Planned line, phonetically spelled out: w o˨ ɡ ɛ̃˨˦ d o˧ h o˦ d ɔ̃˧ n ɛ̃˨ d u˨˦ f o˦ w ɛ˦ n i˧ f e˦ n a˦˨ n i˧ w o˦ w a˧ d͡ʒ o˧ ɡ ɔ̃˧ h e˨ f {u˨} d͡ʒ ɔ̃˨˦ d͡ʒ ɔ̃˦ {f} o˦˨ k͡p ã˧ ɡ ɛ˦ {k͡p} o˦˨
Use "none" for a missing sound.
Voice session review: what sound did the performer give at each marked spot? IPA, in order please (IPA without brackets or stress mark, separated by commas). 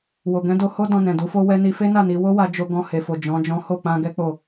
o˨, h, k͡p